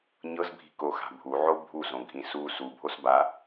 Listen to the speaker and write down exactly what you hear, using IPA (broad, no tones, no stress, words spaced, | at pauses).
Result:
ɲɤzbʱi̤koxa̤ bʱuʕo bʱuzõɡʱĩ su subʱos ba